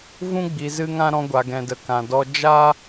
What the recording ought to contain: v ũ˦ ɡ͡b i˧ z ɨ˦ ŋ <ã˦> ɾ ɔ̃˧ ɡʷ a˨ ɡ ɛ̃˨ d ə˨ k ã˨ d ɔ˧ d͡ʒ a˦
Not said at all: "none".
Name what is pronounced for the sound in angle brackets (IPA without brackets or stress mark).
ã˦